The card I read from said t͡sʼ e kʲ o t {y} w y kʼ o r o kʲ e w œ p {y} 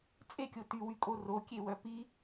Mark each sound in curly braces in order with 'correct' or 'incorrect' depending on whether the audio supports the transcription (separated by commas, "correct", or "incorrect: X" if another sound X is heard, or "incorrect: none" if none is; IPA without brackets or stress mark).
correct, incorrect: i